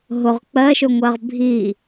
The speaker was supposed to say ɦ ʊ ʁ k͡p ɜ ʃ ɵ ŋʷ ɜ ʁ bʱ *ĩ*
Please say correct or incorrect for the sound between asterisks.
incorrect